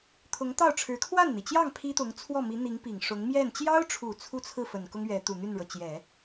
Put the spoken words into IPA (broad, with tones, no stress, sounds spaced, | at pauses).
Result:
t̪ʰ ʊ˧˥ ŋ t̪ ɑ˥˩ ʊ̯ ʈ͡ʂʰ ɻ̩˧˥ kʰ w a˥˩ n n̪ i˩ t͡ɕ j ɑ˥˩ ŋ pʰ i˥ t̪ ʊ˧˥ ŋ t͡sʰ w ɔ˥˩ m i˧˥ n̪ i˧˥ ŋ p i˨˩ ŋ ʂ ʊ˧˥ ŋ m j ɛ˥˩ n t͡ɕ j ɑ˥ ʊ̯ ʈ͡ʂʰ u˨˩ t͡sʰ u˥˧ t͡sʰ ɹ̩˥˩ f ə˨˩ n k ʊ˥ ŋ ɥ ɛ˧˥ t̪ u˨˩ n̪ y˥˩ n ɻ ɤ˩ t͡ɕ j ɛ˨˩˦